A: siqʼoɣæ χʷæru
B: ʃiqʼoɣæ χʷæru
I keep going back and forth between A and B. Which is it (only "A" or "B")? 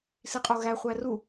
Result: A